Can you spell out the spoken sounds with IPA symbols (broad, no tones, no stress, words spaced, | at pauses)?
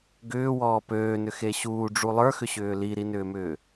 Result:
ɡʏːwɔː pøːnʏxe ɕuːɖ͡ʐu lˠə˞xʏɕʏː liɾinʏːmʏː